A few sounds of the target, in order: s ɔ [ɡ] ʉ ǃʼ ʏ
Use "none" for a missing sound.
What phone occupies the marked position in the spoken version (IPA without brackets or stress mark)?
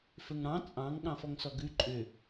ɡ